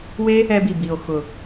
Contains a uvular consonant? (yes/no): no